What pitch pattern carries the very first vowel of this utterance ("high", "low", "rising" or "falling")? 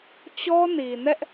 high